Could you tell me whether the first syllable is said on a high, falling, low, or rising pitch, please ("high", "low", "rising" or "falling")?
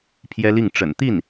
high